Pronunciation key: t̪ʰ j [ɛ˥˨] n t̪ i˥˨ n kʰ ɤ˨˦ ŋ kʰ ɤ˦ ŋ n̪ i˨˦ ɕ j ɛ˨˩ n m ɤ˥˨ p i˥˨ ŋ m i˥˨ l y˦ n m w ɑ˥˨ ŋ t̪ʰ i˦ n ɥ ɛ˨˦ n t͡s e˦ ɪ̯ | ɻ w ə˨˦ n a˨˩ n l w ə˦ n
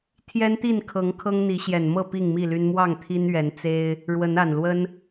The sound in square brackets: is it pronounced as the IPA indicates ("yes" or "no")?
no